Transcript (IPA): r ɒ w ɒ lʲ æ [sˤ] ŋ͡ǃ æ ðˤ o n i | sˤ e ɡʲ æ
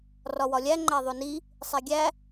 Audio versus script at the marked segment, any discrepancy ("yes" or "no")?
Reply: yes